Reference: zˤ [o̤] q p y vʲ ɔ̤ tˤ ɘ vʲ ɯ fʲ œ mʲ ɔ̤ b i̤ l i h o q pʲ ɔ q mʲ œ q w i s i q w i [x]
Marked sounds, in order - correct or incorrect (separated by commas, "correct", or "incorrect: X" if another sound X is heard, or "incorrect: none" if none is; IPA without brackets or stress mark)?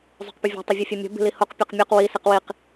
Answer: correct, incorrect: q